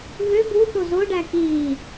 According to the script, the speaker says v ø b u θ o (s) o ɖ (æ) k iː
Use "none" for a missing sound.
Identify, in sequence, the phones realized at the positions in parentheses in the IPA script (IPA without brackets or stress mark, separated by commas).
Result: z, æ